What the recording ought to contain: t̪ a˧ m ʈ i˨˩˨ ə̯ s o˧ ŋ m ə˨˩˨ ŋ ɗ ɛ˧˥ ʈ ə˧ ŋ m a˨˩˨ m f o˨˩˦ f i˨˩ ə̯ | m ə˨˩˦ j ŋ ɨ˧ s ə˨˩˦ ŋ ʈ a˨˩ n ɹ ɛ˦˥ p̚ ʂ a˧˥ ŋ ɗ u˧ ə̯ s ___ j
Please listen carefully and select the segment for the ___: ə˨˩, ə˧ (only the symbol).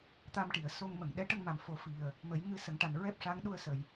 ə˨˩